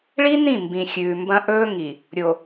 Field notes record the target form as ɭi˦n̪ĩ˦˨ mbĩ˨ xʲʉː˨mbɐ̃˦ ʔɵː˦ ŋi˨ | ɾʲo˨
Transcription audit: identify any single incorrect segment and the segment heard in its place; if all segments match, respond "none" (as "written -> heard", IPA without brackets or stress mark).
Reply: none